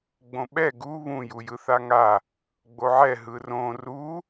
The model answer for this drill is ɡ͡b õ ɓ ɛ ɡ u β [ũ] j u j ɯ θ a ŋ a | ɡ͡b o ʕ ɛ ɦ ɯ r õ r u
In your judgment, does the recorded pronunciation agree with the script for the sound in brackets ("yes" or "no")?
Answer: yes